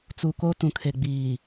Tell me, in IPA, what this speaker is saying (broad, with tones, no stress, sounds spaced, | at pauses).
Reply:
t͡s u˨ k o˦ t ũ˨ kʰ e˨ ɡ͡b iː˨